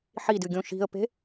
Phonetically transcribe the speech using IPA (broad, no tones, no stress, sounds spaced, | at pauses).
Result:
ħ i d ɨ ɡʲ õ ʃ i̤ ə̯ p e̤